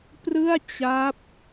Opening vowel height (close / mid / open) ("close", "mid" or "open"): close